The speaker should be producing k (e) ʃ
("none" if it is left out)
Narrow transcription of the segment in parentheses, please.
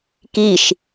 i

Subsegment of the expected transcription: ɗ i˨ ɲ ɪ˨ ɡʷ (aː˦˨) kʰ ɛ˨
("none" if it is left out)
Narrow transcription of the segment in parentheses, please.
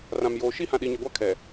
a˦˨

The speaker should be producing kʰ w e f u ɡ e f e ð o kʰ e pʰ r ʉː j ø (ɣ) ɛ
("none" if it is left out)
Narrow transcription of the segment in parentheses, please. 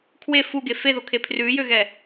ɣ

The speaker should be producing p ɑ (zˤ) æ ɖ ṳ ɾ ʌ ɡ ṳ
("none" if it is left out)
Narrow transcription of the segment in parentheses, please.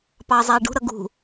zˤ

